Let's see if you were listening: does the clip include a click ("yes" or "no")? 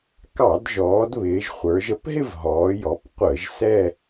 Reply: no